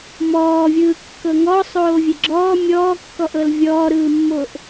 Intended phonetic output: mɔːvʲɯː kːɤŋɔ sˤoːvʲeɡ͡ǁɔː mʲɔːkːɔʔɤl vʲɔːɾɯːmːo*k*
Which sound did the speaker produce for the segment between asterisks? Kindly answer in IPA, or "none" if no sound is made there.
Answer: ʔ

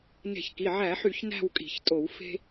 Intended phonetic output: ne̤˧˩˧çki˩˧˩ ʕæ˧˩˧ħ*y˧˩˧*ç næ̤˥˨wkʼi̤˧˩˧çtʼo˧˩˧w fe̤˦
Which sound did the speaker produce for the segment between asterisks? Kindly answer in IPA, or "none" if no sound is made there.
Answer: y˧˩˧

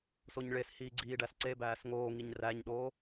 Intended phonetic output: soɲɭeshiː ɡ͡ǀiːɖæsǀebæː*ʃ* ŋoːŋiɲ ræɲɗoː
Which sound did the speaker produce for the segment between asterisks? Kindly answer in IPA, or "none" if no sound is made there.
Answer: s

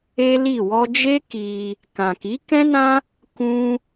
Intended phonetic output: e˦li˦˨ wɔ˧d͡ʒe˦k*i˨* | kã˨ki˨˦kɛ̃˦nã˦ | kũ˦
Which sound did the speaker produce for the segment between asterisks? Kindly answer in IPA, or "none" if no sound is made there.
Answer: i˧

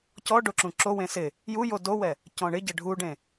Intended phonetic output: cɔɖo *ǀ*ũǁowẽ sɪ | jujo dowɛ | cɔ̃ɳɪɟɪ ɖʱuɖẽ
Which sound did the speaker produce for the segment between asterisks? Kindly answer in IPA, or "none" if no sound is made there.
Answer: ǁ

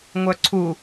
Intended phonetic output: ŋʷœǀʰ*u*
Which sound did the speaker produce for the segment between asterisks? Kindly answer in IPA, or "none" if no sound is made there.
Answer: u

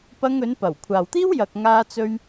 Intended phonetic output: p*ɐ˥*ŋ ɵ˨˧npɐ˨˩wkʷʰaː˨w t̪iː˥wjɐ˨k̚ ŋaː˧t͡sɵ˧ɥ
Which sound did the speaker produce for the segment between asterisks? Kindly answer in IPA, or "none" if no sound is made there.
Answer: ɐ˧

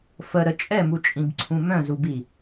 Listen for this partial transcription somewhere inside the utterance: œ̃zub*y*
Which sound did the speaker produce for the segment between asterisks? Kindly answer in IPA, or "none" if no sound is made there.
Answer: i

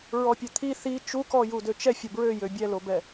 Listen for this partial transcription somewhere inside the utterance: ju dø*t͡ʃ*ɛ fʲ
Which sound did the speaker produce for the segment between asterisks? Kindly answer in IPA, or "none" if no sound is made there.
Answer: t͡ʃ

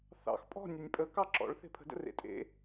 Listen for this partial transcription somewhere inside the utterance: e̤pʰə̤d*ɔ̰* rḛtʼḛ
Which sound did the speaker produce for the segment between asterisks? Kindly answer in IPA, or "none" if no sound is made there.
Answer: ə̰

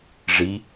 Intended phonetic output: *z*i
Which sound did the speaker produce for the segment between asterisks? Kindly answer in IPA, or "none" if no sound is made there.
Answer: ʐ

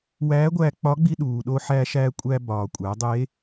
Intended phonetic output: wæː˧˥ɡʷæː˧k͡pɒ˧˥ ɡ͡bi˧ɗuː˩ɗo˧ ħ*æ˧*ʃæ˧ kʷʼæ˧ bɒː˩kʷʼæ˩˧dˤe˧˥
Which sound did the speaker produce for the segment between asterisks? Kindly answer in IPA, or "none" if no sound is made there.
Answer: æ˧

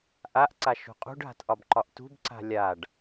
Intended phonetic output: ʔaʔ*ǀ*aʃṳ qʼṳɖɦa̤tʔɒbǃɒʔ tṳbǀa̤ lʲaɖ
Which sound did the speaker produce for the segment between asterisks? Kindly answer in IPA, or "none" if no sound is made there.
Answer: ǀ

